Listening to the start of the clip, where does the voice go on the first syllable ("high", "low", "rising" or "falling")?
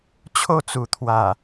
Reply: falling